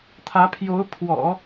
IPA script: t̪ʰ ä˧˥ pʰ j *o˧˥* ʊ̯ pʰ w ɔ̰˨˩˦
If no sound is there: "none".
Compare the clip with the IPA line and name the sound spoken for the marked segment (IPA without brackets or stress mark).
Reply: o˧˥